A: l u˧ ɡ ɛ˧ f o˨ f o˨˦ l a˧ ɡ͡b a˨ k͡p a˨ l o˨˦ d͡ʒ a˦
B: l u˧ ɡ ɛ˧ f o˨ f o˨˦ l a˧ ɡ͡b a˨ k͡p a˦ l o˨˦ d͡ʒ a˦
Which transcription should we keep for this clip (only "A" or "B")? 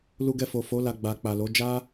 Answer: A